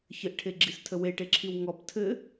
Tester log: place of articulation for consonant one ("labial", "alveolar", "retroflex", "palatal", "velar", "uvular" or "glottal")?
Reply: palatal